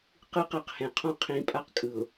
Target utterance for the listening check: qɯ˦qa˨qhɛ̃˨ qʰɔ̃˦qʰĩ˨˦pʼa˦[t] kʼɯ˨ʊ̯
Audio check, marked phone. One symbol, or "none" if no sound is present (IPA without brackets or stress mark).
q